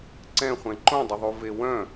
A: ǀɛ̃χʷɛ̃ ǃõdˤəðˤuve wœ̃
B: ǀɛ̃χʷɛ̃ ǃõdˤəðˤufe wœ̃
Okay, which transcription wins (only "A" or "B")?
A